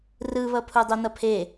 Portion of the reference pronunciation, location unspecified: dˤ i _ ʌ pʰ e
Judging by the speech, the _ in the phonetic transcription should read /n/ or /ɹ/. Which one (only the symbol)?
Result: n